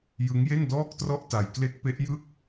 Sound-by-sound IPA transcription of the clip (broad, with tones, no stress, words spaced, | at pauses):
jɯ˦˥ŋje˥˩ndɔː˥˩k̚trɔ˥˩ʔ ta˧j kle˦˥k̚pe˦˥ʔjɯ˥˩k̚